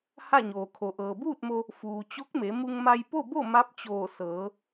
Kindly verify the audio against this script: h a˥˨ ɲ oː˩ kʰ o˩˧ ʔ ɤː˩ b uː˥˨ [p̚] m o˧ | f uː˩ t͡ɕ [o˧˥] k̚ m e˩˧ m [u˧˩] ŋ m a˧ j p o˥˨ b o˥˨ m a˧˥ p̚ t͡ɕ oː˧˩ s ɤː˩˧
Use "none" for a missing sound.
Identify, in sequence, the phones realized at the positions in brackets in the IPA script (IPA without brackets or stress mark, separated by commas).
t̚, o˧˥, u˧